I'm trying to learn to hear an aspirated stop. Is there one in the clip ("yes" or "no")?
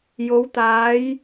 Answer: no